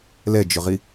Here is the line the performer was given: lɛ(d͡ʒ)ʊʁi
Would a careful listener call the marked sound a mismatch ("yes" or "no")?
no